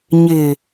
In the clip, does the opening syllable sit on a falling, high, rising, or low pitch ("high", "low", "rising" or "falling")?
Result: low